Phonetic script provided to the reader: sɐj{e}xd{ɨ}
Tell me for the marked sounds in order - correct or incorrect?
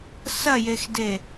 correct, incorrect: e

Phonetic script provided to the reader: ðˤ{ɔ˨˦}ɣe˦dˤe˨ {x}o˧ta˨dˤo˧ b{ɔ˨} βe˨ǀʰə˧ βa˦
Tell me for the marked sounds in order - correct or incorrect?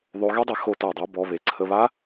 incorrect: o˨˦, correct, correct

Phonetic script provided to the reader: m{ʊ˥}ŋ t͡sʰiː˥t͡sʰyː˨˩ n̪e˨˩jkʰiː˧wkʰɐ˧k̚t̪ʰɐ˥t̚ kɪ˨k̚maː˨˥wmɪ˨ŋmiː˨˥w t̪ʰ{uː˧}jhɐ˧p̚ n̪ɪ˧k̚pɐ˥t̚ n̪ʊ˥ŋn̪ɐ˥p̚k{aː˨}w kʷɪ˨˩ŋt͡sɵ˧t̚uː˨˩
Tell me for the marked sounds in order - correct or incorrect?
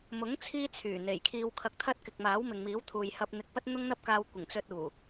incorrect: ʊ˨˥, incorrect: uː˨, incorrect: aː˧

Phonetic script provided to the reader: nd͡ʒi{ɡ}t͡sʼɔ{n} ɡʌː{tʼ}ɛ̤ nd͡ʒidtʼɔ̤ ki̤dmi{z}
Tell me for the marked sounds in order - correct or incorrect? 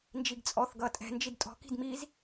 correct, incorrect: θ, correct, correct

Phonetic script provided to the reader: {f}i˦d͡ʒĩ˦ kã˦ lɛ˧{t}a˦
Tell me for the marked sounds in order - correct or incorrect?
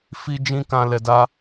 correct, incorrect: d

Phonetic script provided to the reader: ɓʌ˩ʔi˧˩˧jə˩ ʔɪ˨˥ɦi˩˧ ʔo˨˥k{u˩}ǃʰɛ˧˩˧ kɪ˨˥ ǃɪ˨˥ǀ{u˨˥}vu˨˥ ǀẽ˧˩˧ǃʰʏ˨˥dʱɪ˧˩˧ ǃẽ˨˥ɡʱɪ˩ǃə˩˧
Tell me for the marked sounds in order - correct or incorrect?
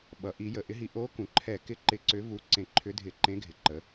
incorrect: ũ˩, incorrect: ʏ˨˥

